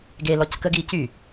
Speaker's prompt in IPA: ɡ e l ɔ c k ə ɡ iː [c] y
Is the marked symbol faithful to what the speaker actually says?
yes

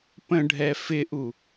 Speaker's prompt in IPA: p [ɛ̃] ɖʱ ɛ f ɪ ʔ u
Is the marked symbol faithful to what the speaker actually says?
no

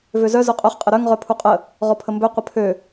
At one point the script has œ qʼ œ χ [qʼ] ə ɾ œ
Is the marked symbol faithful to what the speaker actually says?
yes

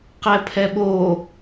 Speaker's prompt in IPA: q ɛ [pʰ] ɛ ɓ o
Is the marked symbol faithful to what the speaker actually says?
yes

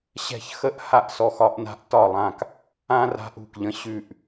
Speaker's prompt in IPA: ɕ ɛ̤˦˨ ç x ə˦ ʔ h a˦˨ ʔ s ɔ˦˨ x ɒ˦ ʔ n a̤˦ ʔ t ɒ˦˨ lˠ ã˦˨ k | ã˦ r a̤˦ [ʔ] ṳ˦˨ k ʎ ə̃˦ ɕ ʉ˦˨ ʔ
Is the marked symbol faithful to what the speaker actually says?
yes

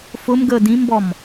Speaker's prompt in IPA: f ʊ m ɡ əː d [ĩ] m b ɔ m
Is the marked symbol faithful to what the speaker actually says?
yes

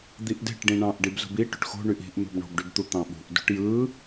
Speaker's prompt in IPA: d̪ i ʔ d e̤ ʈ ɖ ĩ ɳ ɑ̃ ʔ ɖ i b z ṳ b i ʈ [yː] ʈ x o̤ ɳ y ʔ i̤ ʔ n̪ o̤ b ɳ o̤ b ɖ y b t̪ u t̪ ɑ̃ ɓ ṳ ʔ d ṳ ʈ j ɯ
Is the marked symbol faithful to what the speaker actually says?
no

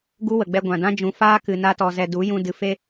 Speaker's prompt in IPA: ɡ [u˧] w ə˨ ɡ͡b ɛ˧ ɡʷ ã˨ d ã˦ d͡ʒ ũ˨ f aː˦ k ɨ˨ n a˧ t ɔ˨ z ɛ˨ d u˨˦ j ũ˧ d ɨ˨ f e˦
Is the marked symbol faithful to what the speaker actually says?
no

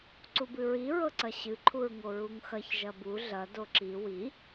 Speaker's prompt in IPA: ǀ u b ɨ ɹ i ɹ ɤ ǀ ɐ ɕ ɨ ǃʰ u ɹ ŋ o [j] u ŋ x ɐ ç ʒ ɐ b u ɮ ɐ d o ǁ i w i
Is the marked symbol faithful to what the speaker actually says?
no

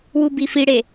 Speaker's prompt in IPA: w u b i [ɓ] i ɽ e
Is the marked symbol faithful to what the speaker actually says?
no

